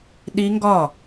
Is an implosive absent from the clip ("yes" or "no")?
no